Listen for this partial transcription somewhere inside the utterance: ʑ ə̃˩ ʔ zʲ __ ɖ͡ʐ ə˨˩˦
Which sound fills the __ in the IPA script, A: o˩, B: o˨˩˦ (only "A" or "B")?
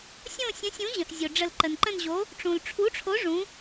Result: A